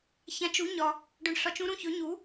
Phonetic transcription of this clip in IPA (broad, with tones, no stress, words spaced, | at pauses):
çã˧˥t͡ʃ u˧˥ɲɒ˧ | ɖɵ˧ɳɬɒ˧˥t͡ʃũ˧˥ ɾũ˧çɵ˧˥ ɲu˧˥